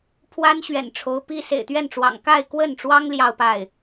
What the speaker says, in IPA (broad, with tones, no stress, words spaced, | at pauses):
pʰwa˥nɕɥɛ̰˨˩n ʈ͡ʂʰo˧˥ʊ̯ pi˥ sḛ˨˩ɪ̯t̪ɥɛ˥˩nʈ͡ʂwɑ̰˨˩ŋ ka˥˧ɪ̯kwə˥˩nʈ͡ʂwɑ˥ŋ ljɑ˥˧ʊ̯pa˥˩ɪ̯